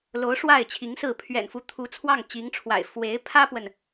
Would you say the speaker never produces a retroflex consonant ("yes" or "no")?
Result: no